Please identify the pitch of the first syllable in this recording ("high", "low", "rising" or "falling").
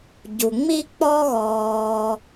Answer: low